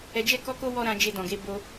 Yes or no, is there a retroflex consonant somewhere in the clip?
no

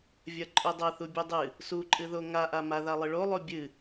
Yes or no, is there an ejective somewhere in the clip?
yes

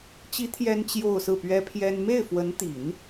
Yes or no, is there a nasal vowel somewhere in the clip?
no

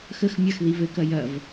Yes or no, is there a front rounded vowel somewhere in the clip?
no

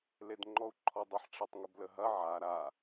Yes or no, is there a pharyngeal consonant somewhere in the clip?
yes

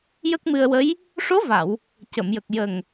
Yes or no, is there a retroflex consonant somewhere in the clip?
yes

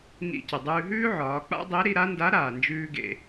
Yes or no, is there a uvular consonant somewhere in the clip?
no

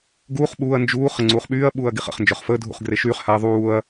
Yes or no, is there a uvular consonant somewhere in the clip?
yes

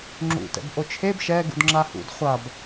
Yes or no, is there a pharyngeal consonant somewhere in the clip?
no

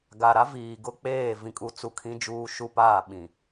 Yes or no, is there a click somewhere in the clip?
no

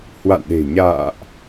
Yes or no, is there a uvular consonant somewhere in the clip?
no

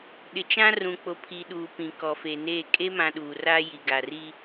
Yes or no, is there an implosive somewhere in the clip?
yes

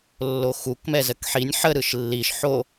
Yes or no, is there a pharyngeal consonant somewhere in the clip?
yes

